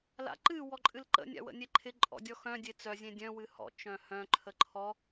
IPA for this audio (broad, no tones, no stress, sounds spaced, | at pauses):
l a̰ ǃ ɨ w ɔ ǃʼ ɨ l ǃ ə̰ nʲ a̰ w ə̰ nʲ e ǃʰ ɪ ǃʼ ɔ̰ dʲ ɔ x œ̃ dʲ e t͡s œ zʲ ẽ dʲ œ̃ w ɨ h ɔ̰ t͡ʃ œ̃ h œ̃ ǃʰ ə ǃʰ ɔ